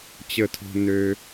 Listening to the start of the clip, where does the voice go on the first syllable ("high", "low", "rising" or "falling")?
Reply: high